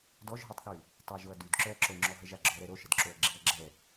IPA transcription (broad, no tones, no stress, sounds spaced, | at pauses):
d ɔ ʒ ɦ œ tˤ θ y | tˤ a ʒ o ɐ̯ d y d ǁ œ ɐ̯ ǁ o ŋ͡ǁ ɔ ɦ ə ʒ a ɡ͡ǁ ɔ ɾ ɛ ɾ o ʃ ə d ǁ o ɐ̯ ɡ͡ǁ i ɐ̯ ɡ͡ǁ ɛ